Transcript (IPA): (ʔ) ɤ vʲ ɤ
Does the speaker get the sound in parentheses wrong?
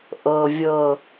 no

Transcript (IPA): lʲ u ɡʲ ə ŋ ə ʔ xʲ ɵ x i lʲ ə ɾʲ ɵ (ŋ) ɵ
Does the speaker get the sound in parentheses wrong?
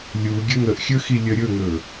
no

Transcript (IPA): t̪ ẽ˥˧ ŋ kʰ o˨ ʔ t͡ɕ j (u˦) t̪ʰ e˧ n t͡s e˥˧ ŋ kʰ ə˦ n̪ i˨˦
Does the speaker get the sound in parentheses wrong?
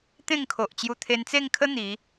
yes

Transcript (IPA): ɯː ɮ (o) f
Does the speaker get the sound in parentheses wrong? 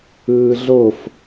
no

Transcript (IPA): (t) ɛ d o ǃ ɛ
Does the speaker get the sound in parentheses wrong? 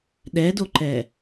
yes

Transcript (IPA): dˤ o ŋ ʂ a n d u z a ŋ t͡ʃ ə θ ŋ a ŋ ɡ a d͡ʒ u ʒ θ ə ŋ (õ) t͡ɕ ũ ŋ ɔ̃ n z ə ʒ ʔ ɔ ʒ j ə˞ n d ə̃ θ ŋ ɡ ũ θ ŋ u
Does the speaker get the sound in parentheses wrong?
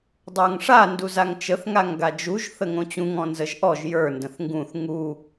no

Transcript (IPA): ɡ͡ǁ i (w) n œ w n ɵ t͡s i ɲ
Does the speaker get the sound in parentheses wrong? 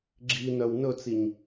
yes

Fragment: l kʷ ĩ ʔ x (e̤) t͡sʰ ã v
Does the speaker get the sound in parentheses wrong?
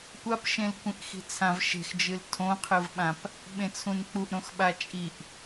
yes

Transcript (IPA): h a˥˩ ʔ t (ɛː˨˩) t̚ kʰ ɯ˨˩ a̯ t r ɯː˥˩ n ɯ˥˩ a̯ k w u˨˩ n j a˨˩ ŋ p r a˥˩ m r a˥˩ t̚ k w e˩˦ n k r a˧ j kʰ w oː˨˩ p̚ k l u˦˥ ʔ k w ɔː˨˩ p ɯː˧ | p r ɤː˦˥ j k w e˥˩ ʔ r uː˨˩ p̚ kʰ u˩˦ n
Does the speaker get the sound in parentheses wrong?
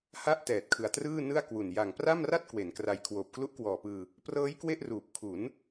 no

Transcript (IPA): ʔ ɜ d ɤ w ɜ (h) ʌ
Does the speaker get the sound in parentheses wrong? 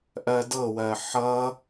yes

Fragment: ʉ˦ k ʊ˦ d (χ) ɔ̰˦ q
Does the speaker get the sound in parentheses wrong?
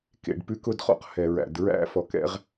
no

